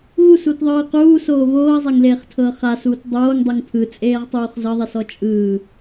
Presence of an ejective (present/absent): present